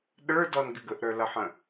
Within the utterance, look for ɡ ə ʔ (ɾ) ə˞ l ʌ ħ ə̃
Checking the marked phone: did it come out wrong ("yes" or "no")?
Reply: no